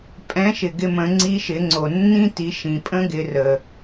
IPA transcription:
pʼ ɛ̃˧˥ ʃ ɪ˩ ɡ ɪ˧ m ə̃˩˧ ŋ͡ǀ i˧˥ ʃ ɪ˩˧ ŋ͡ǀ o˩ nː ĩ˥ t i˩˧ ʃ ĩ˩ pʼ ə̃˥ ɡ ɪ˩˧ r ə˩

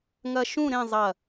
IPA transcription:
ŋ ɐ˧ ʃ ũ˥˧ ɾ ẽ˥˧ zˤ ɐ˧˩

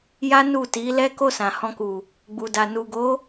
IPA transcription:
j a˦ n u˦˨ t i˨˦ l ɛ˦ k o˦˨ s ã˨ h ɔ̃˧ k u˨ | ɡ͡b u˨ d a˨ n u˨ ɡ o˨˦

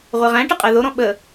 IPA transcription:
ʁʷ ɛ ʁ æ̃ ʈ ə qʼ æ ð o ɾ ɔ̃ ɓ ə

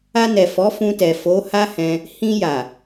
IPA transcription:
a˧ n ɛ˨ f ɔ˨˦ f ũ˧ t ɛ˨ f o˨˦ h a˦ h ɛ̃˧ | h ĩ˧ j a˨

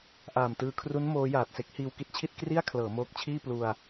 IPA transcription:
ʔ aː˨˩ m t ɯː˧ kʰ r u˦˥ n m oː˦˥ j aː˨˩ t̚ s e˦˥ k̚ h iː˧ w k i˦˥ t̚ t͡ɕʰ i˥˩ t̚ k r i˥˩ a̯ kʰ l ɤː˩˦ m oː˦˥ k̚ t͡ɕʰ iː˥˩ p l u˧ a̯

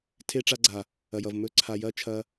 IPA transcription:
tʰ e˧ ʈ͡ʂ a˧ ɡ͡ǀ a˨ | ɐ˨ j ʌ˨ v m ɵ˧ ǀʰ a˨ j ɐ˦ t͡ʃʰ ɐ˦

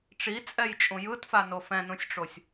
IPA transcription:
ʈ͡ʂ i t͡sʼ ɛ j t͡ʃʼ ũ j ɯ t f a n o f ɛ̃ n ũ sʲ ʈ͡ʂ o sʲ

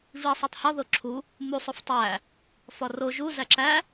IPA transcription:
v i sˤ æ tˤ h ɒ ð o ǁʰ u | m u sˤ o f tˤ æ | f ɒ r o ʒ u z æ ǁ æ

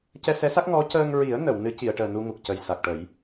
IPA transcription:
c ɛ˧ s ɛ˧˥ s a˦˥ k̚ ŋ ɔ˧˥ c əː˧ ŋ ɹ i˨˩˦ ə̯ n ə˨˩˨ w n ɨ˧˥ c i˨˩˨ ə̯ ʈ əː˨˩ n u˧ ŋ u˨˩ k̚ c ə˨˩ j s a˨˩ k̚ ʈ ə˨˩˦ j

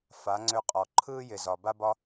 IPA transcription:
f a˨˦ ŋ͡ǀ ø˧ qʼ ɔ˨ ǃʰ ɯː˦ j ɪ˨ z ɒ˨ b a˦ b ɒ˦

